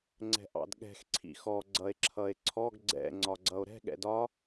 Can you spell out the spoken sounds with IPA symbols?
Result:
ŋ͡ǀɛ̤ʔɑ̰dɠɛ̤x ǀʰḭxɔ ɡ͡ǀʌe̯ǁʰʌe̯ǀʰɔɡ ɡ͡ǀɛ̰ ŋ͡ǀɒɡ͡ǀʌo̯ɾɛ̤ ɠɛ̰dɒ

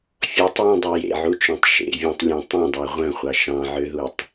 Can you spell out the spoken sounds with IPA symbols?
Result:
fʲɔtˤjẽdˤu jḛʕut͡ʃœ̃tˤ ʃḛvʲɑ̃tˤlʲɔ̃ tˤœ̃dˤɑ ʁʷœ̃χʷɑ ʃɑ̃ʕøðutˤ

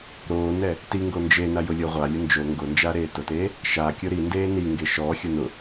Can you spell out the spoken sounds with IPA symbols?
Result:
ɾoːnɛ | tiŋɡo nd͡ʒena jʊlʲʊːʁʷalʲʊ nd͡ʒo ŋɡʊnd͡ʒa ɾeːtʊteː | ʃakʲʊ ɾindeː niŋɡe ʃɔxʲʊ nʊ

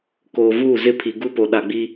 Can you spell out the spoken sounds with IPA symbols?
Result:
koː˨vuː˦˨zɪ˦˨pʰi˨ ɡu˦po˨ ɗa˨ɡ͡bi˦

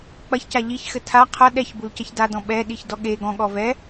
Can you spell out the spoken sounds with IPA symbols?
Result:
k͡pɐçca ʎiçxɘ tʰa qʰɐ ɗɛçbulcɐç dadɔ̃ ɓɛɗiçdɔ ɠe ɡɔ̃ɠɔ vɛ

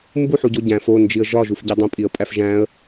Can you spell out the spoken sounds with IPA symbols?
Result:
mbuħuɟo ɟæ̃f ond͡ʒiə̯ ʒɒʒufɟe dˤõpʼiə̯pʼæf ʒæ̃ə̯

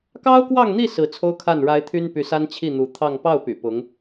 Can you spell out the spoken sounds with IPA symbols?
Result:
kɑ˥ʊ̯kwɑ˥˧ŋn̪i˥˩ sɹ̩˧˥t͡sʰo˥ʊ̯kʰa˥˩n ɻa˥ɪ̯ t̪ʰy˥npy˧˥ sa˥nt͡ɕʰi˥˩n̪u˧˥ t̪ʰɑ˥˧ŋ pɑ˥˩ʊ̯ py̰˨˩pʊ˧˥ŋ

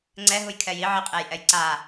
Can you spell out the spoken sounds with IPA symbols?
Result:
ŋ͡ǀɛɦuj kʰɛji ʕiqʼejʔɛj ǀa

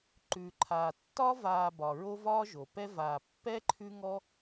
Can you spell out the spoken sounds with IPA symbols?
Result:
ǃʉ˩ǃʰaː˩ tːɒ˥ vaː˨bɒ˩ ɹo˦ vɒː˦ʒo˩pɛ˦vaː˨ pːɛ˥ǃʰʉ˦ŋɔ˦

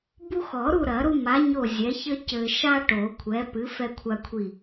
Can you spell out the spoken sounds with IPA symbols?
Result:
bu˦ xɔ˨˩˦ɾu˦˨ ɾɐ˨˩˦ɾu˦ma˨˥ ɲo˦˨zʲɛ˨˥ çɘ˦ cɘ˨ʃa˦ ʈo˨˩˦kʷʰɛ˨˥pɨ˨˥ fɛ˦kʷʰa˦kʷʰi˦˨

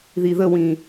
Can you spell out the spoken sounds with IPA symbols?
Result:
ðiðəwĩ

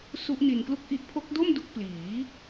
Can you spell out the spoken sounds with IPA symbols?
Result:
su˦˥ʔni˧nklu˥˩k̚ ʔi˦˥ʔpʰo˦˥k̚do˥˩m du˦˥k̚pliː˩˦

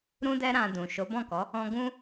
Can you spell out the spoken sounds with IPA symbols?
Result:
ɾũ˦dɛ˦ɾã˧ dũ˨ʃo˨˦ bɔ̃˦˨kɔ˨˦ | ɔ̃˧ɡũ˦

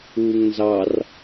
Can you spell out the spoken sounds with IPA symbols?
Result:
uːŋnzɑr

